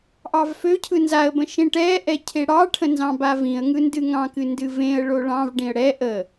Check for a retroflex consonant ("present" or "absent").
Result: present